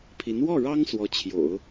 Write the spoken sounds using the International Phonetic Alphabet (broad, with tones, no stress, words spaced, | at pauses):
pʰi˧˥n wɔ˥˩ɻɑ˥ŋ swɔ˧˥t͡ɕʰjo̰˨˩˦ʊ̯